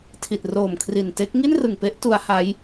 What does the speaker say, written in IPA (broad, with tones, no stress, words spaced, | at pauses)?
tʰi˨˩t̚roː˨˩mkʰri˨˩n te˦˥k̚ ŋi˥˩nrɯ˨˩ŋpe˦˥ʔ tu˦˥a̯ha˦˥j